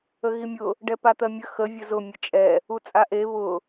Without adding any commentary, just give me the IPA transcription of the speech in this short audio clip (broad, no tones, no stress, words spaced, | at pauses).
əɣimʲʊ | ɖɛpat̪ɜmʲə xə vʲəzʊ mʲət͡ʃʼɛ | ut͡sʼaʔe βʊ